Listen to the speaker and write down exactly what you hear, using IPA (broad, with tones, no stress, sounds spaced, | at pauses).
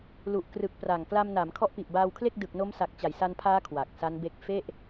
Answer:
l u˨˩ ʔ k r ɯ˨˩ k̚ p r a˨˩ ŋ k l a˧ m n a˩˦ m kʰ ɔ˦˥ ʔ p i˨˩ ʔ b aː˧ w kʰ l e˥˩ k̚ d ɯ˨˩ k̚ n o˦˥ m s a˨˩ k̚ t͡ɕ a˩˦ j s a˧ n pʰ aː˦˥ kʰ w a˨˩ k̚ s a˦˥ n b e˦˥ k̚ f e˥˩ ʔ